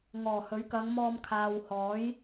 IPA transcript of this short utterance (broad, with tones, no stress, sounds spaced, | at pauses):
ŋ ɔː˨˩ h ɵ˨˥ ɥ k ɐ˨˧ ŋ m ɔː˧ m kʰ aː˨ w h ɔː˨˥ j